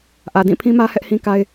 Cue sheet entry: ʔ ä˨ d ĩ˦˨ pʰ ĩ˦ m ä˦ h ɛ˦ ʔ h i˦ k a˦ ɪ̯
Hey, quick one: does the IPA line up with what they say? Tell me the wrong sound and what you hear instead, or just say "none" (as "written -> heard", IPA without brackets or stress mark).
i˦ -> ĩ˦